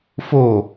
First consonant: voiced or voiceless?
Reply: voiceless